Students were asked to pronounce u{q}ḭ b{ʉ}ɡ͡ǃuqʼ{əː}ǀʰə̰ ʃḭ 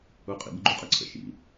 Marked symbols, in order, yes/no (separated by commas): no, no, no